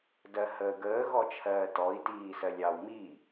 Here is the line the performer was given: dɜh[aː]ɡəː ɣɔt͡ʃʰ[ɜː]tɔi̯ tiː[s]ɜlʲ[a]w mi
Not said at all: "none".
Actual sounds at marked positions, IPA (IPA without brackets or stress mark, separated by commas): əː, ɜː, s, ɑ